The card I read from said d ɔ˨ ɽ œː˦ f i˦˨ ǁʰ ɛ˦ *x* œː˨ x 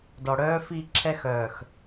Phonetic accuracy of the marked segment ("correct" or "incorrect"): correct